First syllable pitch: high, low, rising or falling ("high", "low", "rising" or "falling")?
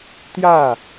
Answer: falling